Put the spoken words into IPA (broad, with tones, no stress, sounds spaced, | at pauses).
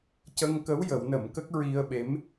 c ə˧ ŋ k ə˧˥ w j ə˨˩˦ w n ə˨˩˦ m k ə˦˥ k̚ ɹ i˧ ə̯ ɓ e˧˥ m